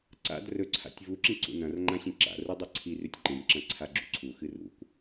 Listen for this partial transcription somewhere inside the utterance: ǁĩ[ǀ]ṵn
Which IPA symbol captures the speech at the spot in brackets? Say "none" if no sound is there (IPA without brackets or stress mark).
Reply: ǀ